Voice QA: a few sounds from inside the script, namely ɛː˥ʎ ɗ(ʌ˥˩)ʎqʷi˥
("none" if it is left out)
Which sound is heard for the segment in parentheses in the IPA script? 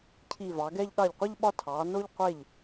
ɑ˥˩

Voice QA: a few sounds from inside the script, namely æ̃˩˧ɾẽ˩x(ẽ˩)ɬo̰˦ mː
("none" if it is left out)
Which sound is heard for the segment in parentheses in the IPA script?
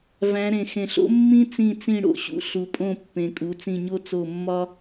ẽ˩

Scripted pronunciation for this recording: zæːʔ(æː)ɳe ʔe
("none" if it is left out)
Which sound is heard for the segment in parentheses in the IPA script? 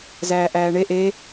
æː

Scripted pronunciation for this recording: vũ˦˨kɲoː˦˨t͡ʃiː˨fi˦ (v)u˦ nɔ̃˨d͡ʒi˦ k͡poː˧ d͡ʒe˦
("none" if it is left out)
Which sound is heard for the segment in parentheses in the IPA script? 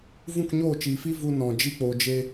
v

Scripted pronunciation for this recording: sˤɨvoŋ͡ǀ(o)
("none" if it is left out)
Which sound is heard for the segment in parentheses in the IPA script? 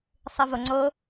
o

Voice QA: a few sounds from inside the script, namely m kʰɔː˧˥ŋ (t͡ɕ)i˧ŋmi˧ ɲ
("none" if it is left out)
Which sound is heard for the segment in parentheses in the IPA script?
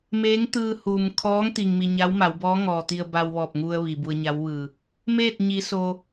t̪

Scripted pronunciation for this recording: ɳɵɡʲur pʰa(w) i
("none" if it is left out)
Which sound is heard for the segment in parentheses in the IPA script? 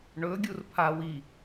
w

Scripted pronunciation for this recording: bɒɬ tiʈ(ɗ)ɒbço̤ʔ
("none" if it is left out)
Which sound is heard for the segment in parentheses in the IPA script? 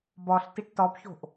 t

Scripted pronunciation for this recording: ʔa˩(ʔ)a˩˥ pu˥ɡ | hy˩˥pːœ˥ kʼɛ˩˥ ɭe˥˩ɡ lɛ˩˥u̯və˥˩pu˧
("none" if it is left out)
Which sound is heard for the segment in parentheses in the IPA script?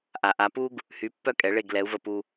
ʔ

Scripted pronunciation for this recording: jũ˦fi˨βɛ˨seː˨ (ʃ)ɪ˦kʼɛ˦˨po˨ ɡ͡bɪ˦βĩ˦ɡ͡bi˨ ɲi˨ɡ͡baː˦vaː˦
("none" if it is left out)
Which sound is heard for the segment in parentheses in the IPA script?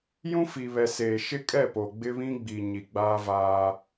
ʃ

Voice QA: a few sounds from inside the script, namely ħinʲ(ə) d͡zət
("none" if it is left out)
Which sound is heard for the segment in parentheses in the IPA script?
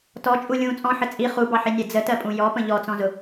ɛ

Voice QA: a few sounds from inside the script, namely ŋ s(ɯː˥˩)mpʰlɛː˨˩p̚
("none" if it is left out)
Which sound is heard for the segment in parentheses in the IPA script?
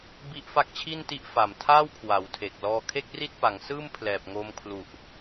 ɯː˥˩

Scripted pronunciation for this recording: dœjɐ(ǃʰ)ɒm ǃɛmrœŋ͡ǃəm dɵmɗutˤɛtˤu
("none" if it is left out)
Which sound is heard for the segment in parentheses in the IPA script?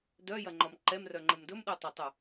ŋ͡ǃ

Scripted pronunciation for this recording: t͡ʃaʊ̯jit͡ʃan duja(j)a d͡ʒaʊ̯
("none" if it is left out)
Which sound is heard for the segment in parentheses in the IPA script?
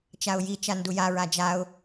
ɹ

